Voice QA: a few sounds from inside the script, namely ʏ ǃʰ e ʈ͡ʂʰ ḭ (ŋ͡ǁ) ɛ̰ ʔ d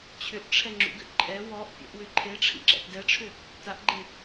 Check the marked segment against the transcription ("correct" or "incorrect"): incorrect